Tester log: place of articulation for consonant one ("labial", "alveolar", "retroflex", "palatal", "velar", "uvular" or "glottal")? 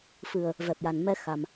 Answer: labial